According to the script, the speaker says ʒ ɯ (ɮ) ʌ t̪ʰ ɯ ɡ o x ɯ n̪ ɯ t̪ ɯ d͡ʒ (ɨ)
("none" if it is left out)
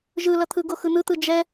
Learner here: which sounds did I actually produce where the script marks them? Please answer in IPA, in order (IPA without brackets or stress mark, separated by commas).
l, ɛ